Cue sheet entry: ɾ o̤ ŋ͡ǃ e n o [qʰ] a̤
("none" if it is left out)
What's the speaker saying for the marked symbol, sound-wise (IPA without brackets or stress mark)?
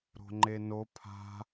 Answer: pʰ